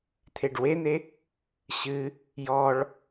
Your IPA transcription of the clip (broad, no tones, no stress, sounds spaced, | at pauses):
t̪ʰ e ɖ w e n̪ e | ɕ ɨ | j ɔ ɭ